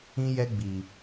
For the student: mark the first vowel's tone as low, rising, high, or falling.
high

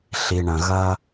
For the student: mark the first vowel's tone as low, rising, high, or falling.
low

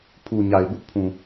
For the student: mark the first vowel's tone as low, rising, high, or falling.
low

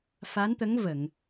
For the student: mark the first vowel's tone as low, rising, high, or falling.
rising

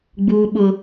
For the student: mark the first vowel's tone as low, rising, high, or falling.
high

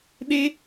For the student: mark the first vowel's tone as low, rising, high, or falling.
high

